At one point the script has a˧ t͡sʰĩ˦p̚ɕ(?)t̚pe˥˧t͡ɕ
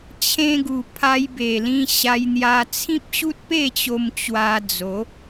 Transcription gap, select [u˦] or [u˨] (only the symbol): u˦